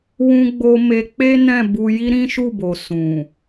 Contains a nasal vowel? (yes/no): yes